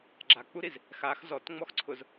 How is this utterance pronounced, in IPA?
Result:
ɡ͡ǁ a k͡p u ɾ i z | x a x z ɔ t ŋ͡m ɔ x ǀʰ ʊ z

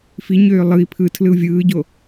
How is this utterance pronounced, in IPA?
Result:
f i ɲ øː lˠ ɯ i̯ pʰ ɯ tʰ l ɯ u̯ vʲ ɯː ɟ o

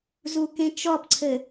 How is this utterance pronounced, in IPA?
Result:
z u k ẽ t͡ʃ ɔ p ǀʰ ɘ

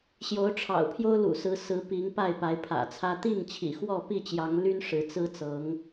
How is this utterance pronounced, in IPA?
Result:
ɕ j o˨˦ ʊ̯ ʈ͡ʂʰ ɑ̰˨˩ ʊ̯ pʰ j o˦ ʊ̯ l ṵ˨˩ s ɹ̩˨˦ s ɹ̩˨˦ p i˨˦ ŋ p a˥˨ ɪ̯ p a˨˦ ɪ̯ pʰ ä̰˨˩ t͡sʰ ä˦ t̪ i˥˨ ŋ t͡ɕʰ ḭ˨˩ x w ɔ˥˨ p i˥˨ t͡ɕ j ɑ˨˦ ŋ l y˦ n ʂ ɻ̩˨˦ t͡s ɹ̩˦ t͡s ɤ˨˦ ŋ

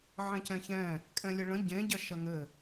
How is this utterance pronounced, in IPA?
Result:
ʕ ẽ c ɛ̃ ç ɛ̃ | kʼ ɛ̃ lʲ ɘ ɭ ə̃ ɟ ẽ ɟ ɐ ʃ ɐ ŋ ɘ

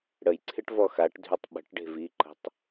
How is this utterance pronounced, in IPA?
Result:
ɽ ə j ǀʰ ɪ ʈ v ɔ x a ʈ dʱ y tˤ ɓ ə̤ ʈ ɖ e̤ v i ǃ ə̤ tˤ

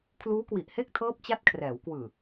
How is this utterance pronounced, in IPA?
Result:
kʰ l uː˦˥ k w i˨˩ ʔ h e˥˩ k̚ tʰ ɤː˦˥ p̚ t͡ɕ a˦˥ t̚ kʰ r ɛː˩˦ w k w ɯː˨˩

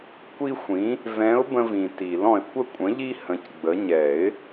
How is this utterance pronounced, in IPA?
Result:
kʷ i˦ xʷ ĩ˨˦ | v ɛ̃˨˦ ʊ̯ b ə̃˦ v ĩ˨ t i˨˩˦ l ɔ̃˨ ɪ̯ kʷ ə˦˨ kʷʼ ə̃˨˦ ʎ i˦ h ə̃˨˦ c ɡ͡b ə˨˦ ɲ ɛ˨˩˦ ɪ̯

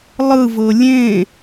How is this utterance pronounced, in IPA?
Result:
lˠ ɯ v ɤ lʲ ẽ

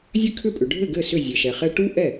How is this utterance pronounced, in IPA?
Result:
zʲ ɘ˥˩ kʰ ʏ˥˩ pʼ ʏ˩ ɖʱ ɘ˥˩ ɡ ɘ˥˩ s ʏ˥˩ zʲ ɘ˩ ʃ ɛ˩ χ ɛ˥ ʈ u˥ ʔ ɛ˥˩

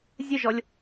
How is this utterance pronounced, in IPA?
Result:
zʲ ɘ ʒ ɔ lʲ

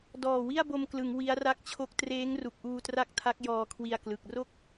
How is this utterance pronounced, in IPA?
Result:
d ɔː˨˩ w i˥˩ a̯ b o˧ m k l ɯ˩˦ ŋ w i˦˥ a̯ r a˥˩ k̚ t͡ɕʰ o˥˩ k̚ t r eː˦˥ ŋ r u˨˩ k̚ ʔ uː˧ t r a˦˥ k̚ tʰ a˦˥ k̚ j ɔː˧ kʰ w i˧ a̯ k l ɯ˨˩ k̚ r o˥˩ k̚

